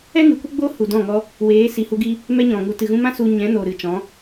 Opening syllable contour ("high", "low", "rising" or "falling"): high